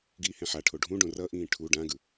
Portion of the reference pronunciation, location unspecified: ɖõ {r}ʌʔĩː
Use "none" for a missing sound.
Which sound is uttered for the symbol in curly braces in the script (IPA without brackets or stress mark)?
r